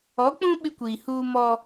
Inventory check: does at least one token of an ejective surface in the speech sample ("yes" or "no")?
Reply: no